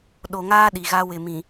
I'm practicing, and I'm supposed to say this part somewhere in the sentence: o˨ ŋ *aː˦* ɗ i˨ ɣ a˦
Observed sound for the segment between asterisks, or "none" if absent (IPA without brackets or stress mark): aː˦